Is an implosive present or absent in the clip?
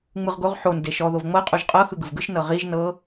absent